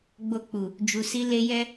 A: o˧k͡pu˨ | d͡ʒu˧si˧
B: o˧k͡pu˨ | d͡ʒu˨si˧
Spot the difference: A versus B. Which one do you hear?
B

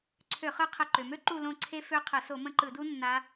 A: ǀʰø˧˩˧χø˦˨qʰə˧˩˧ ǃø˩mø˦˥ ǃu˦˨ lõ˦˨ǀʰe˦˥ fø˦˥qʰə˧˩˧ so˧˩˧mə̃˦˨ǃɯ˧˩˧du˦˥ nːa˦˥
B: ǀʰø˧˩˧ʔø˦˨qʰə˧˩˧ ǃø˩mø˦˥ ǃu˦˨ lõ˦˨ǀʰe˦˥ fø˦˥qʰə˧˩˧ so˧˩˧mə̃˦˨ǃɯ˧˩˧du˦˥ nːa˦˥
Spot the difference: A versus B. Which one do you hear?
A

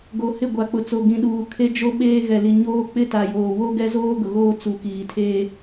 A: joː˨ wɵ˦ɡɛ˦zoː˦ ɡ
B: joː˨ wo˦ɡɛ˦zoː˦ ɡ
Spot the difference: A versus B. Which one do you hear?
B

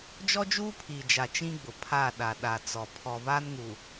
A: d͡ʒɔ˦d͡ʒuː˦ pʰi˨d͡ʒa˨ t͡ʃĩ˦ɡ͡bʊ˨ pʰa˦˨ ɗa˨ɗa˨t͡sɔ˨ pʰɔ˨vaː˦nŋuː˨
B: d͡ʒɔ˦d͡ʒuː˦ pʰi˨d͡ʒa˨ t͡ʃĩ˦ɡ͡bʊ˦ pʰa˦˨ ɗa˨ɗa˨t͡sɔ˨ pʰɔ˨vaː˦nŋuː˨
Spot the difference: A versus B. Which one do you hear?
A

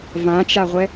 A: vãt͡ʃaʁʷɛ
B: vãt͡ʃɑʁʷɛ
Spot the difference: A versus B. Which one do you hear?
A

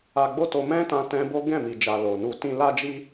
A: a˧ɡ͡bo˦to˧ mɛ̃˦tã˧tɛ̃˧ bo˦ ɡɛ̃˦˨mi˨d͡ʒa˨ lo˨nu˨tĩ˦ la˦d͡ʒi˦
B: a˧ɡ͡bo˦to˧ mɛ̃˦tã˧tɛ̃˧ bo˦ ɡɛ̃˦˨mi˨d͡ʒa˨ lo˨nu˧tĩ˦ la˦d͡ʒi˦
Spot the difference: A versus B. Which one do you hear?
B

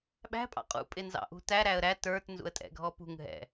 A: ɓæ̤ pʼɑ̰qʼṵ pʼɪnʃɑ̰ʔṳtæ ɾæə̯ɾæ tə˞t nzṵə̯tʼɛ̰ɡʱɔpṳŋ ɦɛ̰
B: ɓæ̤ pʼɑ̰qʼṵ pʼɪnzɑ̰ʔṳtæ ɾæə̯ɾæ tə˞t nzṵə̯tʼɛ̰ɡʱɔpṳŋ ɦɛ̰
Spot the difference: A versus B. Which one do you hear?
B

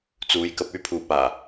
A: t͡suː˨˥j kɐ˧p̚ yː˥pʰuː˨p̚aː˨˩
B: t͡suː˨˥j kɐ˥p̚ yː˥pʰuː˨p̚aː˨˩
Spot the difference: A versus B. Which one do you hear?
A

